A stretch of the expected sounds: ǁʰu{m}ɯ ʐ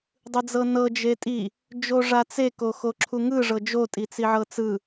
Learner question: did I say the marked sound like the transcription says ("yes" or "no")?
no